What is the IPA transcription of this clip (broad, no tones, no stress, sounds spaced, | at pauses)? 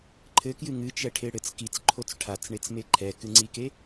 ǃʰ ɘ k j ɨ ŋ ɨ t͡ʃ ɛ ʈʰ e ɽ ɘ t͡s k i t͡s ǃʰ o t͡s ʈʰ a t͡s ɳ e t͡s m e ǃʰ ɛ k ɨ ŋ͡ǀ i k e